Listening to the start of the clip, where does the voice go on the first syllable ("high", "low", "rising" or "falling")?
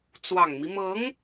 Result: low